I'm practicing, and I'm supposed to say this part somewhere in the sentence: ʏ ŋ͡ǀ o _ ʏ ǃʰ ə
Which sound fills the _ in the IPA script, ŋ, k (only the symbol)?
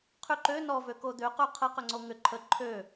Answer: ŋ